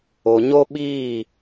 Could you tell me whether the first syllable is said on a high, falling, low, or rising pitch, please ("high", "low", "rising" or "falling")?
low